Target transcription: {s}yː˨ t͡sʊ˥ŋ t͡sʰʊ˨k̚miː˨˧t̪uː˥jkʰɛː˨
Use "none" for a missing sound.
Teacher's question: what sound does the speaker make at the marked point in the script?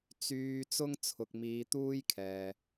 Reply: t͡s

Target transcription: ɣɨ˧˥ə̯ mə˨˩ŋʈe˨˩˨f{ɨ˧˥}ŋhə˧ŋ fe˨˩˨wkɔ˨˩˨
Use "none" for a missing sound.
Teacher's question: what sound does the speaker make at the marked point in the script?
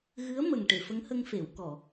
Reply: ə˧˥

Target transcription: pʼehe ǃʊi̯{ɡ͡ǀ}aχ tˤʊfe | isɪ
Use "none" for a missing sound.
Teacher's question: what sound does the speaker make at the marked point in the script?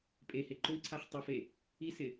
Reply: ǀʰ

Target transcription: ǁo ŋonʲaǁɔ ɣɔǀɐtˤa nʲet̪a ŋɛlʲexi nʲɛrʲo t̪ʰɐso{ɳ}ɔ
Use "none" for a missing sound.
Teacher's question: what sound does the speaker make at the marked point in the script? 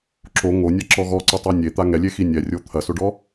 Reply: ɖ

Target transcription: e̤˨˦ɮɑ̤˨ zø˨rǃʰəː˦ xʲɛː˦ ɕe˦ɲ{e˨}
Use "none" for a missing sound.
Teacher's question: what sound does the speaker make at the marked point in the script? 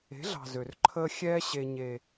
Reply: e˦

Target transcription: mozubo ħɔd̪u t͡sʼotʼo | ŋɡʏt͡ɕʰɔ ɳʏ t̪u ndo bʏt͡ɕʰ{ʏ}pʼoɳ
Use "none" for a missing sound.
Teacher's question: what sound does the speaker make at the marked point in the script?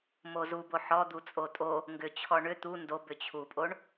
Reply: u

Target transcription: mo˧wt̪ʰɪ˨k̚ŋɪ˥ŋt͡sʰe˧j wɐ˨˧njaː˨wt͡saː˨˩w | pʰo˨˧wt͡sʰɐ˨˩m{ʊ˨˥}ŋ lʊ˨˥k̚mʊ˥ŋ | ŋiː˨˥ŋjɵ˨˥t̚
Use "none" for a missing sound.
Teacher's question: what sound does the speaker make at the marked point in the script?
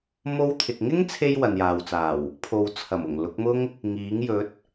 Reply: ʊ˨˩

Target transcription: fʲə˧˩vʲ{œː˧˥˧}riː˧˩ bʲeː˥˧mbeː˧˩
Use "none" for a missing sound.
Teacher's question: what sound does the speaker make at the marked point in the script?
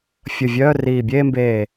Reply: œː˧˥˧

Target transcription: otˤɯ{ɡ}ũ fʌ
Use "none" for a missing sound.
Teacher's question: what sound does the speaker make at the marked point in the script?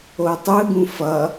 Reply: ɡ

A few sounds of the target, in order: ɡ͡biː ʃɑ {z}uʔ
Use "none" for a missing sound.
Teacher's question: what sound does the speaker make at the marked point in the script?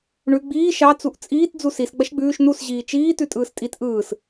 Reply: t͡s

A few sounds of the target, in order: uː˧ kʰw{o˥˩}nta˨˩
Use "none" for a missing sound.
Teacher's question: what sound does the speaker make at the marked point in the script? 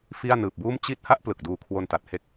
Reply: o˧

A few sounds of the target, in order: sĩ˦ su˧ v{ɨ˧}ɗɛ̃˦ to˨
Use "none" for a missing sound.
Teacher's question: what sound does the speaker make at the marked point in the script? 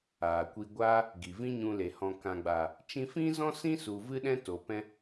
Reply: ɨ˦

